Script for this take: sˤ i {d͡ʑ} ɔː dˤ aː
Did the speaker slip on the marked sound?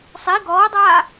yes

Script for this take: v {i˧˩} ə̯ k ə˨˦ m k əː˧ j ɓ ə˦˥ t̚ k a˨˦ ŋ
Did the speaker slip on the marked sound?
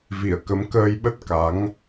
no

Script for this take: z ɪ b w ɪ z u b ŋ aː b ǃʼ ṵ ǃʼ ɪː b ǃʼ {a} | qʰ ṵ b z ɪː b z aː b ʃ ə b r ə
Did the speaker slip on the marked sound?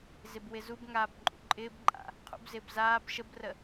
yes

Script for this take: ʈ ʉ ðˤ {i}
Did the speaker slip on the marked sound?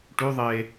yes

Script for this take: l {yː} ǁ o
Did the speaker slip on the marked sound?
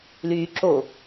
no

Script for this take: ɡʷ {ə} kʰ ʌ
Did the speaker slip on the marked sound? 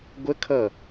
no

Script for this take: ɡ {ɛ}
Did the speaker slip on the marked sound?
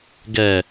no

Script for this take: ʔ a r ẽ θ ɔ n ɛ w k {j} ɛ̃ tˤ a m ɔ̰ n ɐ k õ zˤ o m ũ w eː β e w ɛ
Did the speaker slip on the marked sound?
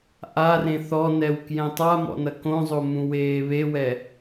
no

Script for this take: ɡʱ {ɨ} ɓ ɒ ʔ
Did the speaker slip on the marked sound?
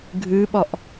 no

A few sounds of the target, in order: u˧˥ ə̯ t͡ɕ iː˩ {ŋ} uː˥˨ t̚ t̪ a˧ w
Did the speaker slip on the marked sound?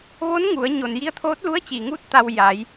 no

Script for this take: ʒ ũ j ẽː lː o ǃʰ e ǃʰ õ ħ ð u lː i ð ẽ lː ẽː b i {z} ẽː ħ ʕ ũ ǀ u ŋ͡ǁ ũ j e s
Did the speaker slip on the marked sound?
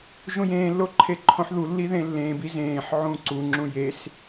no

